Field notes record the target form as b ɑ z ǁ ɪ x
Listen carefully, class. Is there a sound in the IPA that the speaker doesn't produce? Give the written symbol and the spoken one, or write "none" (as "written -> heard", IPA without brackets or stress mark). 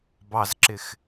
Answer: none